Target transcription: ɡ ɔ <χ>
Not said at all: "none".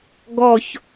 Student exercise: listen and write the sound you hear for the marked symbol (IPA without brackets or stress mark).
ç